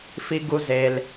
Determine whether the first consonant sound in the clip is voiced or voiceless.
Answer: voiceless